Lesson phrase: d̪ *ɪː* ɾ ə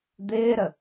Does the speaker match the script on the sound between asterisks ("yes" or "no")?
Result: yes